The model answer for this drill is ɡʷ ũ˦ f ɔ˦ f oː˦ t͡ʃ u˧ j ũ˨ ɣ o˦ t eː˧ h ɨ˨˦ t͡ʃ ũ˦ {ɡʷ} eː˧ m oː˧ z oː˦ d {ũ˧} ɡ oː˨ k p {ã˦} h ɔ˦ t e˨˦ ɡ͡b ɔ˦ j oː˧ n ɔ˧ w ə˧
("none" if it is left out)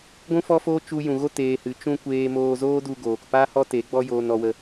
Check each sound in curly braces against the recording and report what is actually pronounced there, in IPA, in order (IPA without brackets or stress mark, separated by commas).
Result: kʷ, u˧, a˦